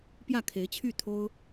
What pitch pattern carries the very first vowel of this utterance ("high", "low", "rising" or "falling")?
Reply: falling